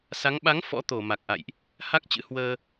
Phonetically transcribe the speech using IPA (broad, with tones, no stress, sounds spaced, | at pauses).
s a˨˦ ŋ ɓ a˨˦ ŋ f ɔ̰˧˥ t̪ o˧˩ m a˨˩ k̚ ʔ a̰˧˨ j ʔ | h a˦˥ k̚ t͡ɕ ɨ̰˧˥ h w əː˧